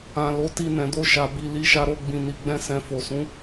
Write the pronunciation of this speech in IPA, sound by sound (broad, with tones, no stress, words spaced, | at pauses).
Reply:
ã˨ lo˨˦ti˧ nɛ̃˨do˧ ʃa˨bi˨ li˧ʃa˧ɾo˧ ɡ͡bĩ˨ni˨ɡ͡bɛ̃˧ sɛ̃˨fo˨sũ˨˦